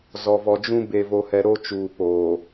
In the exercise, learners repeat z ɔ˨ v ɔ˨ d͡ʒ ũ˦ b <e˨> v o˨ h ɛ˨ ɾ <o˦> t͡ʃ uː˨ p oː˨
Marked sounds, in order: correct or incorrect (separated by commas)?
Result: correct, correct